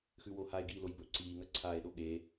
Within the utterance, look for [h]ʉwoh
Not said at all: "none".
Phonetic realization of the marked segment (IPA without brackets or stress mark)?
x